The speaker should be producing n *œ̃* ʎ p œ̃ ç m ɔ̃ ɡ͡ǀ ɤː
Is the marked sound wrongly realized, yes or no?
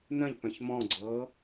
no